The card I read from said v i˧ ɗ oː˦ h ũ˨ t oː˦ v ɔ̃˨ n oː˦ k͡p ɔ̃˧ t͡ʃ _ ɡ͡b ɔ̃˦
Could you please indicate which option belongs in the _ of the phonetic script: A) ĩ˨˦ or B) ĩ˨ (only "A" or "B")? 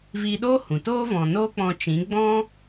A